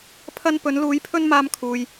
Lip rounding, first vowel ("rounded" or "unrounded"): unrounded